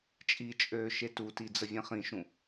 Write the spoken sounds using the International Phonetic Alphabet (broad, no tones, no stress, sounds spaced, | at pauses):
t͡ʃʼ i t͡ʃʼ øː ʃ e t u t i d͡z ə vʲ ẽ χ ĩ ʃ ũ